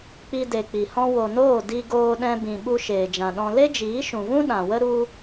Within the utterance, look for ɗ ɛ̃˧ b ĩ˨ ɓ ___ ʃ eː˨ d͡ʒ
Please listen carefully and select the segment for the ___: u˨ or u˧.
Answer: u˧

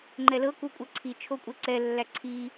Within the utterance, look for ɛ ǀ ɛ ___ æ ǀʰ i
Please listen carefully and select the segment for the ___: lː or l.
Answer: lː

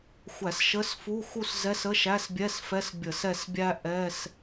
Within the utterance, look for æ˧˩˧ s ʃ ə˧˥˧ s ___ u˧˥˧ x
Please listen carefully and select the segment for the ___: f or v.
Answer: f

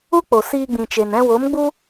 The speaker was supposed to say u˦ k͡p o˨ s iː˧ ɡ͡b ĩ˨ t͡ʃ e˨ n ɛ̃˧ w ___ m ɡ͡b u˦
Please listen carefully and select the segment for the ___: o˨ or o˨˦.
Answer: o˨˦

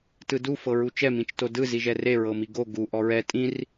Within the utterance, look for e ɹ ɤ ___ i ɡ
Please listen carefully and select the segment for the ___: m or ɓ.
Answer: m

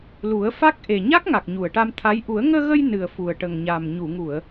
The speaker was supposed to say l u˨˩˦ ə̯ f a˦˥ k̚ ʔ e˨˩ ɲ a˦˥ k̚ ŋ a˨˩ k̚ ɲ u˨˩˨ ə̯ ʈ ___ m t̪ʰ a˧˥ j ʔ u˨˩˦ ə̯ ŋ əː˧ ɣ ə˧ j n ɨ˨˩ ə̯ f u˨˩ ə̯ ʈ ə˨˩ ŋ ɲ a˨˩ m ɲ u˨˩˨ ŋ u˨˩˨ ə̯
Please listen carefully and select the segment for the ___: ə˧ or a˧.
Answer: a˧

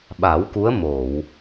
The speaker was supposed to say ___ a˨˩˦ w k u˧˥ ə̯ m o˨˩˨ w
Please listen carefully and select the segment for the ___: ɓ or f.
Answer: ɓ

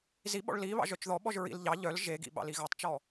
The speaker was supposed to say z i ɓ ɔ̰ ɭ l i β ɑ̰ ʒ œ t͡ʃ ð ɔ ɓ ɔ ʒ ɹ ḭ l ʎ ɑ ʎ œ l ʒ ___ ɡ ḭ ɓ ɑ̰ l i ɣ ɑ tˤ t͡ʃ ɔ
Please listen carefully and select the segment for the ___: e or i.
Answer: e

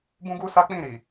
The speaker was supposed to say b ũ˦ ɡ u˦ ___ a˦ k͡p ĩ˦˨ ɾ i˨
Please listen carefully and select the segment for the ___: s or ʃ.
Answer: s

